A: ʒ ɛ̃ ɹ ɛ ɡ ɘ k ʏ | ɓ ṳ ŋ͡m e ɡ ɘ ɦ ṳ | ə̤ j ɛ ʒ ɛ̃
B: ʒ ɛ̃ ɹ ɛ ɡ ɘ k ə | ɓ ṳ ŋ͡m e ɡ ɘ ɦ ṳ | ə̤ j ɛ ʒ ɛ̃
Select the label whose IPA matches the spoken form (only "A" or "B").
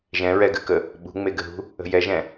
B